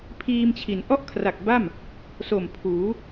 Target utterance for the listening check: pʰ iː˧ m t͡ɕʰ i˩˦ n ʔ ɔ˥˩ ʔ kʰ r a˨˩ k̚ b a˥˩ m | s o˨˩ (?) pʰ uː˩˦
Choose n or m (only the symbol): m